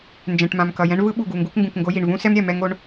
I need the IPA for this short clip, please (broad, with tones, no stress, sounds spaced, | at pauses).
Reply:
n d͡ʒ ɛ̃˨ ʈ m ã˨ m k ʌ˨ j ɛ̃˦ ɳ v ɯ˦ ɓ u˨ ɡ u˨ ŋ ɡ u˦ k ŋ ɡ ũ˨ k ŋ ɡ o˦ j i˨ ɳ v ũ˦ s ɛ˦ m ɾʲ ɛ˨ m ɛ˦ ŋ o˦ ɳ